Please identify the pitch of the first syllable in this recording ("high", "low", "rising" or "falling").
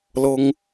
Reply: high